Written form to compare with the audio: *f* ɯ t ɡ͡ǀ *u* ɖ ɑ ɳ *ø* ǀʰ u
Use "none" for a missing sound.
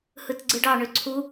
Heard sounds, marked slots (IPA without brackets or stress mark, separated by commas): h, ɯ, ø